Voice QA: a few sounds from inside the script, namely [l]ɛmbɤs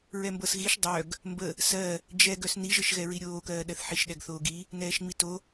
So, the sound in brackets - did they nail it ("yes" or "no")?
no